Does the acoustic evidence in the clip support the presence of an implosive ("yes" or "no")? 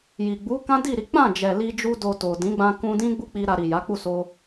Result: no